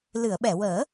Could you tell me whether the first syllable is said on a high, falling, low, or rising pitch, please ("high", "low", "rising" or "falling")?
low